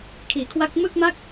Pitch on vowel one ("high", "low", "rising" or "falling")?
low